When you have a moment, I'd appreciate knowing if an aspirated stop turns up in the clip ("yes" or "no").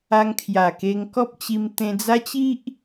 yes